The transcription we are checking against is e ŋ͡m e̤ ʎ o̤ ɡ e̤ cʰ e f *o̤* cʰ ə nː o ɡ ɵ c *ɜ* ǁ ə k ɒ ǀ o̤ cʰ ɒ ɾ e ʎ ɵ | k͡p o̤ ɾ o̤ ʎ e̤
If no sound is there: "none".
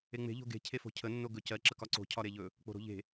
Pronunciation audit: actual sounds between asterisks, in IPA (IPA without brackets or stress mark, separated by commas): o̤, ɜ